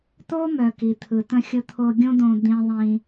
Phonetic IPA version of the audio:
t̪ o˥ m œ˩ k i˩ t̪ʰ ɯ˩ t̪ ə̃˧ xʲ ʊ˧ t̪ʰ o˧ ɡʲ õ˥ d̪ õ˧ d̪ ĩ˧ ðˤ ĩ˧

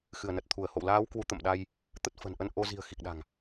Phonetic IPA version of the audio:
x ɨ˧˩ ə̯ n ə˨˩ t̚ t̪ʰ u˧˩ ə̯ h o̰˧˨ w l aː˨˦ w k w u˨˦ t̪ ə̰˧˨ m ɗ a˧ j | t̪ ə˦˥ t̚ f ə̤˨˩ n ʔ ə˧ n ʔ o˧ z i̤˨˩ ə̯ x i˨˩ k̚ ɗ a̤˨˩ ŋ

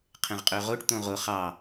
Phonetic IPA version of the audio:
qʰ ẽ ʁ qʼ ø ʁ o ʈ t̪ õ ʁ o χ ɑ

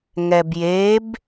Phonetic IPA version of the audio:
ŋ ɛ b j e b

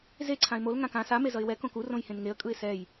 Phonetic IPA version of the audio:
z e ǀʰ ã ɪ̯ m o l ŋ ã k ã s a m e z ʌ ɪ̯ w ɛ k õ k u r õ j h ẽ n ŋ e ə̯ kʼ ɯ ɪ̯ s ɛ j

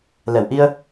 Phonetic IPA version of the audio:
l ɛ˨˩˨ w ʔ i˧ ə̯

